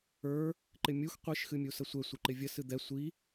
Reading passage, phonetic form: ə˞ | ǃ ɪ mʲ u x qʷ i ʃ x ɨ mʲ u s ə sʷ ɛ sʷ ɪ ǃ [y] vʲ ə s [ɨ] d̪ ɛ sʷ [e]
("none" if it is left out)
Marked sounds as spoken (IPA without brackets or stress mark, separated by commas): ɪ, ɨ, i